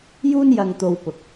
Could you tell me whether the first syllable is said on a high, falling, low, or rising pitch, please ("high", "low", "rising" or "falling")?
high